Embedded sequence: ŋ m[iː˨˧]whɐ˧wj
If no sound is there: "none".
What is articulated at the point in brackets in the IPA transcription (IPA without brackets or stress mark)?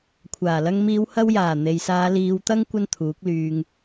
iː˨˧